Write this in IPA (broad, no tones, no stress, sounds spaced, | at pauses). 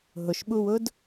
ɦ ʊ ʃ ɓ u w ʊ d